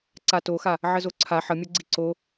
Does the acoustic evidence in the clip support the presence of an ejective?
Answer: no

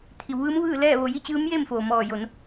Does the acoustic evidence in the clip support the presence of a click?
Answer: no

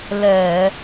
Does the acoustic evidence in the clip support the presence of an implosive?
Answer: no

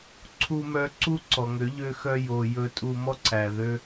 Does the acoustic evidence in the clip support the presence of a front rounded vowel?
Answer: yes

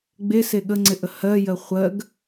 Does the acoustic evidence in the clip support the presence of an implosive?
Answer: yes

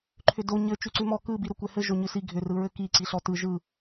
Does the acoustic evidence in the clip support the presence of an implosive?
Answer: no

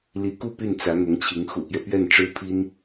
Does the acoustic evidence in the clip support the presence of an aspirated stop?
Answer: yes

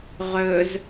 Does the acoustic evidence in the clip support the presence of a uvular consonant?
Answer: yes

